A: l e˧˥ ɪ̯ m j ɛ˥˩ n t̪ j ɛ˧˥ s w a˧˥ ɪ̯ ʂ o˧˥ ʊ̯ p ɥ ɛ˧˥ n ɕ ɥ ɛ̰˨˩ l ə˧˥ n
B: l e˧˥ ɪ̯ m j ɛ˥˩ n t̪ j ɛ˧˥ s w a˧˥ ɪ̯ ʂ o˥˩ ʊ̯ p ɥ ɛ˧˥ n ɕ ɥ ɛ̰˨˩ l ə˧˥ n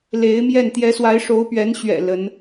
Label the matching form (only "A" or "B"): A